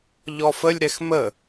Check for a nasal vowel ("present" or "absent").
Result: absent